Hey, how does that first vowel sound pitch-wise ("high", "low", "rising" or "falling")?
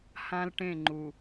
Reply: high